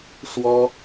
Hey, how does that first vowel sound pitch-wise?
high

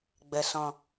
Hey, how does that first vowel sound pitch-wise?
low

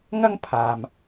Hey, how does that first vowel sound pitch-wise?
high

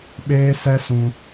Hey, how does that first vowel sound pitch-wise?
high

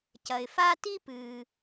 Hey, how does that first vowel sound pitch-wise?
low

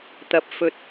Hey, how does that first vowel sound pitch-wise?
low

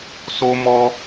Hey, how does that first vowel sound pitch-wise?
high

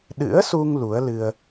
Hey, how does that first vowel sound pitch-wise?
rising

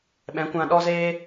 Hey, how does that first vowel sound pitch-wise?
rising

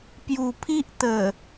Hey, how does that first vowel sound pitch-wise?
low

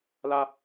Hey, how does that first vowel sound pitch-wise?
high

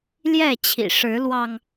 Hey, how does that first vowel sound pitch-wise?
falling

